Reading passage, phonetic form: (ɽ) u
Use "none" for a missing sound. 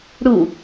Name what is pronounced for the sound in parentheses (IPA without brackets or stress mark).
ɽ